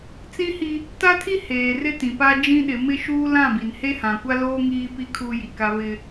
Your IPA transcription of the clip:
t͡s ĩ˦ h i˦ | t a˦ tʰ i˦ h eː˨ r ɪ˦ t ĩ˨ p a˦ d͡ʒ ĩ˦ ɗ ɪ˨˦ m ɪ˦ ʃ uː˦ l ã˦˨ b i˨ n h e˦ h ã˨ kʷ a˦ l oː˦ ŋ iː˦ p i˦ kʰ uː˦ j i˨ k a˦ β ɪ˦

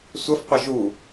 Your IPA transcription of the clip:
sʷ ə f qʷ ə ʒ u

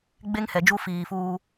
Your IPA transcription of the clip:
ɡ͡b e˦ ŋ h ɛ˨ d͡ʒ u˦ f iː˨ f uː˦

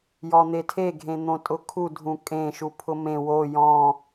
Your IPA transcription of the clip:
j ɔ n̪ e tʰ e ɡʱ ẽ n̪ õ tʼ ʊ kʰ u dʱ ũ kʼ ẽ ʃ u pʰ ʊ m ẽ w o j ɔ̃

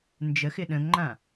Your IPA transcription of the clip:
n d͡ʒ ə x ɪ ɗ ə̃ ŋ ŋ͡ǃ ã

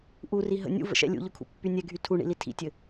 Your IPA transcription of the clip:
ʔ u r i ɦ ə̰ nʲ ṵ v ə̰ ʃ ɛ̰ lʲ ṵ ʎ ʊ kʰ ṵ pː y nʲ ɛ ɡʱ y tʰ u ɳ ḭ l i tʰ ḭ tʲ ɘ

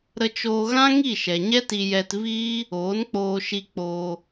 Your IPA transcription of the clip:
ɾ ə˧ t͡ʃ oː˧ ɣ ã˦ ŋ i˦˨ ʃ ɛ˨ ɲ ɛ˦ t i˧ j ɛ˧ t v iː˦ | oː˨˦ n k͡p oː˧ ʃ i˧ k͡p oː˧

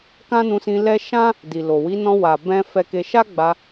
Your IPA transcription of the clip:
k ã˦ n ũ˧ s ĩ˧ l ɛ˦ ʃ ã˦ | d i˨ l o˨ w i˨˦ n ɔ̃˧ w a˨ b ɛ̃˧ f ɛ˧ k e˧ ʃ a˦ ɡ͡b a˧

